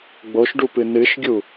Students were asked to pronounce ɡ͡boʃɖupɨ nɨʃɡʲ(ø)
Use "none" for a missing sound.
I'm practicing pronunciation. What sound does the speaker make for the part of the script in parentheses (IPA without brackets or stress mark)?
u